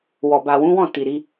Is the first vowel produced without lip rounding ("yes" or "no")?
no